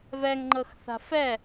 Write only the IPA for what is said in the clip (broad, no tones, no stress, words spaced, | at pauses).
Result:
vɛŋŋ͡ǃɤxθa̤ fɛ